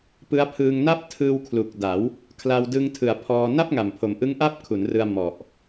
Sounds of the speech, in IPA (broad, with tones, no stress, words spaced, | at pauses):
pɯ˦˥a̯ pʰɯː˧ŋna˥˩p̚ tʰɯː˧wkʰlu˨˩k̚da˩˦w | kʰla˧wdɯ˧ŋtʰɯ˩˦a̯ pʰɔː˧ na˥˩p̚ŋa˨˩mpʰo˨˩mʔɯ˦˥ŋ ʔa˥˩p̚kʰu˩˦nrɯ˧a̯ mɔ˨˩ʔ